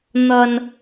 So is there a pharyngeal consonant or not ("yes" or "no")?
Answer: no